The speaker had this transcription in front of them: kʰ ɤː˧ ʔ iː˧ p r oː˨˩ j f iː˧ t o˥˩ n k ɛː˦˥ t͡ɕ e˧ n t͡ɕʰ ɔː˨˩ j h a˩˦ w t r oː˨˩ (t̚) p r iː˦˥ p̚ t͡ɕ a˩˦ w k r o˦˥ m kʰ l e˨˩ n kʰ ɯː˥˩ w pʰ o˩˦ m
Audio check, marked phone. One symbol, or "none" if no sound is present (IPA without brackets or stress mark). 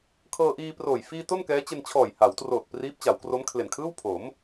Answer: t̚